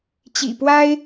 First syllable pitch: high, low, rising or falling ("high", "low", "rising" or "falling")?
low